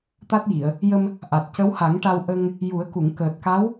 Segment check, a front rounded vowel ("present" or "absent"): absent